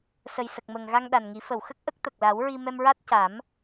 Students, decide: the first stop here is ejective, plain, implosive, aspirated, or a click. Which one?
plain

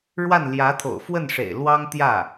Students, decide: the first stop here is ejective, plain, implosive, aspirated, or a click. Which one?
aspirated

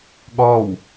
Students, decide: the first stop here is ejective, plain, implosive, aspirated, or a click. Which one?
implosive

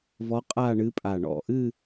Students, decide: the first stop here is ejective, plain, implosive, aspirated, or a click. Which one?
ejective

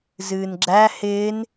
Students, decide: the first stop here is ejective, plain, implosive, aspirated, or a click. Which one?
click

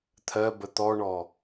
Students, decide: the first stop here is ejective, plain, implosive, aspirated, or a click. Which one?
aspirated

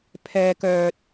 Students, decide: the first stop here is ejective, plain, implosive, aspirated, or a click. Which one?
aspirated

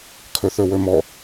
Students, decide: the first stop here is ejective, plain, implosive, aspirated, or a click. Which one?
aspirated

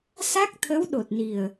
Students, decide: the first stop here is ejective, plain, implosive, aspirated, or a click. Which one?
plain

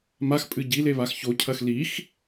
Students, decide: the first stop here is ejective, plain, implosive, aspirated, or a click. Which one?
ejective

